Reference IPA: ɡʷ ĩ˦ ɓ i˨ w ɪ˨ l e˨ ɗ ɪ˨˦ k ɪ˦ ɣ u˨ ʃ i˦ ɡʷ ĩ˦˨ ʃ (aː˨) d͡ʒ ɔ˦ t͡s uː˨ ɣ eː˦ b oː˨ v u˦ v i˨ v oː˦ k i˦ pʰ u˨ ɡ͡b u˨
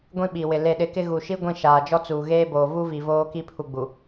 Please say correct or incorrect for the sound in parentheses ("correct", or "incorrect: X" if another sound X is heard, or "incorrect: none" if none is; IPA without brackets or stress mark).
correct